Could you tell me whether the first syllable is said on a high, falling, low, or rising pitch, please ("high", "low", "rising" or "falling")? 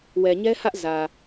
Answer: low